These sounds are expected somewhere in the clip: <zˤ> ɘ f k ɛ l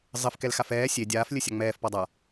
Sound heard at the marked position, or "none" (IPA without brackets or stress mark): zˤ